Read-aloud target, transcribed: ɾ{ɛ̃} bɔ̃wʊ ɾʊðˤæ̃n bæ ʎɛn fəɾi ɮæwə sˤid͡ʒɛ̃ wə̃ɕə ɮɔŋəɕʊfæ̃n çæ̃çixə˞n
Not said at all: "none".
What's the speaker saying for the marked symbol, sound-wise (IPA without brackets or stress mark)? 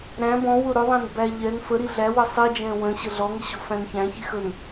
æ̃